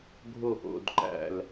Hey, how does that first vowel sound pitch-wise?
low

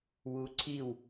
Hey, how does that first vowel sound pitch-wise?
rising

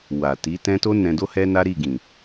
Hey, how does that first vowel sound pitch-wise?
low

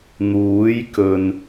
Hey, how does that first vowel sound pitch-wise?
rising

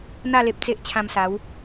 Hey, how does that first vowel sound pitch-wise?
falling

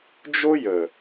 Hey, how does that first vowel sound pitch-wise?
high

